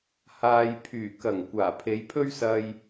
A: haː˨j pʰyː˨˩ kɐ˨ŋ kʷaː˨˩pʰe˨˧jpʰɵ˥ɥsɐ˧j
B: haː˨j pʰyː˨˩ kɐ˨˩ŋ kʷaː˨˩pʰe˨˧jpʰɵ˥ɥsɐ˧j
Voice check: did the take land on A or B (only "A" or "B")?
B